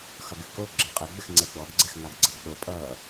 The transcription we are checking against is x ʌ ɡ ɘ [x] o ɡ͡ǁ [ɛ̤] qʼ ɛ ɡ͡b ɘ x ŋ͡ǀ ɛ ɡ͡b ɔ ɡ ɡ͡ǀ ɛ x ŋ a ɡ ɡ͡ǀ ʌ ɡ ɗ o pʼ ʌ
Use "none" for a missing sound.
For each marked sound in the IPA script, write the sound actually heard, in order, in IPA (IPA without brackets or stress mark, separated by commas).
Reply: k, ɛ